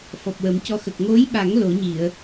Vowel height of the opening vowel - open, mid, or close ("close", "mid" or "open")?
mid